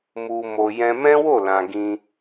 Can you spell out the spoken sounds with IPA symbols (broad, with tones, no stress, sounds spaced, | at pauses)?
m u˨ m o˨ j ɛ̃˧ m ɛ̃˦ w o˦˨ l ã˨ ɡ ĩ˧